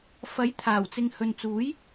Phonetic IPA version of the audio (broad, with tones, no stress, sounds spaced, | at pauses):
f ɐ˨˥ j t̪ʰ aː˨˩ w t͡s ɪ˨ ŋ h ɵ˨ n t͡s uː˨˥ j